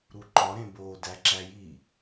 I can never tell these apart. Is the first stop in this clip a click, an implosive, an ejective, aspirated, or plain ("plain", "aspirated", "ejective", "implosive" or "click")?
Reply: click